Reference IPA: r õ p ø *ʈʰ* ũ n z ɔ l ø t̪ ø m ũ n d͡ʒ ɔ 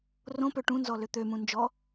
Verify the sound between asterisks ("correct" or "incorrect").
incorrect